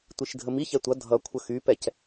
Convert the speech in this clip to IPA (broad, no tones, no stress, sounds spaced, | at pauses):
tʷ i ʃ dʱ ə m i ç ɛ tʷ ʌ dʱ ʌ kʷʰ ə x y p ɛ c